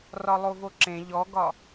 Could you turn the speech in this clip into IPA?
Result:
r ɒ lˠ o v o ǁ ẽ ʎ ɔ ɡ ɒ

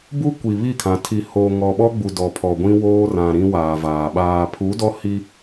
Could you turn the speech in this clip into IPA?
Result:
b u˦ kʷ i˨ β i˦˨ kʰ ã˨ tʰ i˨ h oː˨ ŋ ɔ˨ ɓ ɔ˦ ɡ͡b u˨ d ɔ˨ pʰ ɔ˨ ɡʷ ĩ˦ w oː˦ r ã˨ ɾ ĩ˦ w aː˨ v aː˨ ɓ aː˨ pʰ u˨˦ d ɔ˦ h i˦

